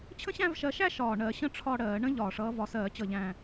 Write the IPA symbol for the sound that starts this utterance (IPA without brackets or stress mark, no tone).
t͡ɕʰ